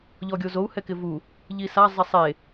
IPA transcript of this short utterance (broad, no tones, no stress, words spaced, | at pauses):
ʎɔɡʲozou̯ hɛkɪvu | ʎisa zˤɛsˤe